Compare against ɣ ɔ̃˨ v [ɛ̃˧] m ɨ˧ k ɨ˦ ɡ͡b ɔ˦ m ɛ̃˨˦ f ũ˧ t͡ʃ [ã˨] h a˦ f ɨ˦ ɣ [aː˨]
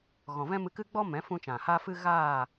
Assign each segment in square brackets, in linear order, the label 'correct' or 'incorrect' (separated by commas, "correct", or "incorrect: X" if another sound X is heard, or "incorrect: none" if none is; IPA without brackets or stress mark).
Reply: incorrect: ɛ̃˦, correct, incorrect: aː˦˨